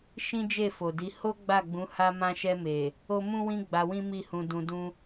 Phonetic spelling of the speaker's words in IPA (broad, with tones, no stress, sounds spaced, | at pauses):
ʃ ĩ˦ d͡ʒ e˦˨ f o˨ d i˨˦ h o˦ ɡ͡b a˦˨ ɡ͡b ũ˨˦ h a˧ m ã˧ ʃ ɛ˧ m e˨ | o˦ m ũ˦ w ĩ˦ ɡ͡b a˧ w ĩ˦ m i˦˨ h ũ˧ d ũ˧ d ũ˦